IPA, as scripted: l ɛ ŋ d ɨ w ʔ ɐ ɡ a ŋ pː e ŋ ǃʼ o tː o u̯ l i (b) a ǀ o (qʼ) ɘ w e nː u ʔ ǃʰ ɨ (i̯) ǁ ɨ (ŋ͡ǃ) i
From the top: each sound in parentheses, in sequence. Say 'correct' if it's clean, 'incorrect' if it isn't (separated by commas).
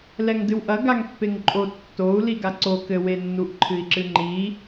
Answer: incorrect, incorrect, correct, correct